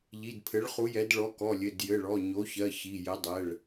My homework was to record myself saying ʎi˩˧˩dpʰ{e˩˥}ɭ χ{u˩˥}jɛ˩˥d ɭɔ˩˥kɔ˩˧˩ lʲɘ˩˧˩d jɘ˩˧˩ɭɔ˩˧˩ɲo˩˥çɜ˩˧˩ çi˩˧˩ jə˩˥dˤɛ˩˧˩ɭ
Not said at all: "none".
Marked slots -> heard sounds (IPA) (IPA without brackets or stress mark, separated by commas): ɘ˩˥, u˩˥